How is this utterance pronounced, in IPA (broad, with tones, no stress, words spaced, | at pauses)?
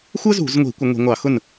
xʷə˥zṳ˧˩˧zŋʷi̤˧˩˧ kʷə˧˩˧ŋʷi̤˧˩˧ŋʷɑ˧˩˧xʊ˥˩n